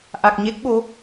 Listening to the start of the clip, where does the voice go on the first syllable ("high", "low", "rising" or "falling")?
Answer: low